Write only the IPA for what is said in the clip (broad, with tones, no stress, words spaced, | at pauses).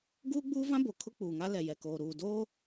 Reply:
ɡuː˦ɡ͡buː˦vã˦ bo˨ kʰʊ˦k͡puː˨ŋa˦ lɛ˨jɛ˨koː˨ ɾuː˨doː˦